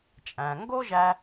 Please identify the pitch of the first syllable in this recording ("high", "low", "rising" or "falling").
low